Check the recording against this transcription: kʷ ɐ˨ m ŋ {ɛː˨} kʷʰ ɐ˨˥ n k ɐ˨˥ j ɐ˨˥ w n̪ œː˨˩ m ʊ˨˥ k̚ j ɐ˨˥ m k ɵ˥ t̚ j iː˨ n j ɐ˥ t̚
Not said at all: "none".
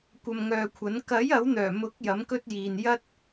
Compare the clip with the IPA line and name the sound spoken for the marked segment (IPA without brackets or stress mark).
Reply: œː˨